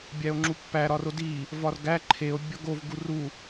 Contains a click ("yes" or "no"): yes